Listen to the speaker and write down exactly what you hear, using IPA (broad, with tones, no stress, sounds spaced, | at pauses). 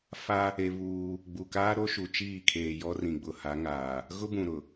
f a˦ | e˦ β uː˦ | ɡ͡b u˨ k aː˦ ɾ o˦ ʃ u˨ t͡ʃ iː˦˨ kʰ eː˨ j ɔ˦ r ĩ˨ ɡ͡b ʊ˨ h a˨˦ ŋ aː˨ | ɣ ʊ˦ b ũ˨ ɾ ʊ˨